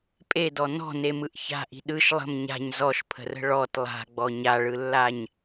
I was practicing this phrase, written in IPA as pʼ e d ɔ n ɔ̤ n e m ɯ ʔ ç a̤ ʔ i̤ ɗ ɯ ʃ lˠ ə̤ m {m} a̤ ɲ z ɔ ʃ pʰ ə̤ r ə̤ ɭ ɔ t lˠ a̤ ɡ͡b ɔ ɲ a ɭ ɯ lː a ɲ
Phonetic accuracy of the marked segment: incorrect: ɲ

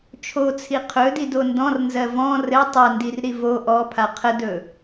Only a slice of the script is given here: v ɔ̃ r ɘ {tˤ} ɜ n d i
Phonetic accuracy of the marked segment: correct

